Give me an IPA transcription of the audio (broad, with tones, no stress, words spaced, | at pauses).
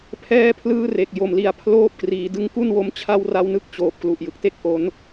pʰɛː˧pʰlɯː˧ re˨˩k̚ jo˨˩mli˩˦a̯pʰloː˥˩p̚kriː˩˦ dɯ˧ŋku˥˩nwo˦˥m t͡ɕʰa˥˩wra˦˥wnɯ˦˥k̚ t͡ɕoː˨˩p̚ klu˨˩ʔjɯ˨˩k̚te˥˩k̚ ʔo˦˥n